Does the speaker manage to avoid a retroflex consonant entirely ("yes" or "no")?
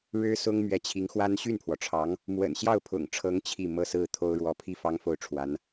no